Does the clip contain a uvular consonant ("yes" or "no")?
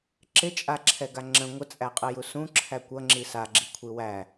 yes